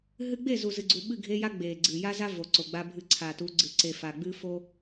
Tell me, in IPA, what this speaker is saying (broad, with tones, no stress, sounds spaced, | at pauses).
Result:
ɦ ɨ˦ ɡ͡b e˦˨ z u˨ z ɨ˨ ɡ͡ǀ u˨ ɓ ɨ˦˨ ɡʱ e˦ j a˦ ɡ͡b e˨ ɡ͡ǀ ɨ˨ j a˦ z a˦ v o˨ ǀ o˨ ɡ͡b a˦ bʱ ɨ˦ ǀʰ a˨ t u˨˦ ɡ͡ǀ ɨ˨ ǀ e˨ f a˨ ɡ͡b ɨ˦ f o˦